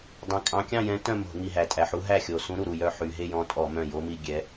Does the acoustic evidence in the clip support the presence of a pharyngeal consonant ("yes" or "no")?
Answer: yes